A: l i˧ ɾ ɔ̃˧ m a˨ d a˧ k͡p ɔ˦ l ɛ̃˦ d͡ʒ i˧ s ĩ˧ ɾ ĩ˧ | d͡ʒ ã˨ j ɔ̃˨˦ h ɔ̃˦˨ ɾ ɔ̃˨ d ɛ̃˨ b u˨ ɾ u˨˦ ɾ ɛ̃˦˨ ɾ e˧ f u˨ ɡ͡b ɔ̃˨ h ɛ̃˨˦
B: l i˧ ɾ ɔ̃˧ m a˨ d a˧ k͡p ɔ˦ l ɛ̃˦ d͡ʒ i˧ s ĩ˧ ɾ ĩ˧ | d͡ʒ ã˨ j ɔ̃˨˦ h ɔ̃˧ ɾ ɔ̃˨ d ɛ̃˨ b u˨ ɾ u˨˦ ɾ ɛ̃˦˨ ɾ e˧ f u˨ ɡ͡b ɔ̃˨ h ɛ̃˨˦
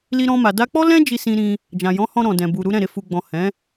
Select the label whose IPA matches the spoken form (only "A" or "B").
B